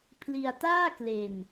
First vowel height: high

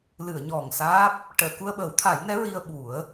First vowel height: high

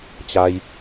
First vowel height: low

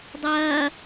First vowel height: low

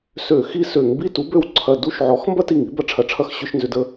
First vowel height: mid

